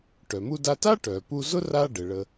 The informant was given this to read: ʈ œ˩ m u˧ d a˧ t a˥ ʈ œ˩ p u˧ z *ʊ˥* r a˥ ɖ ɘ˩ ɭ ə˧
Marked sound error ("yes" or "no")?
no